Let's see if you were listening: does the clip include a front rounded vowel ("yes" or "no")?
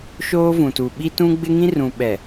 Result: no